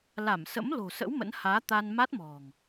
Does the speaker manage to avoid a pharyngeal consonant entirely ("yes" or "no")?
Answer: yes